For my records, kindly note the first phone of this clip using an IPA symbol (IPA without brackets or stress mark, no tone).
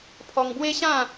pʰ